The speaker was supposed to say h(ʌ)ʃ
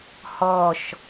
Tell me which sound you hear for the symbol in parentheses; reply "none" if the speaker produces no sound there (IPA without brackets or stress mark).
ɔ